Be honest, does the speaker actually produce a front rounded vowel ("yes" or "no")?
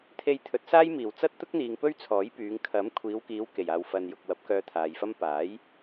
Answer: yes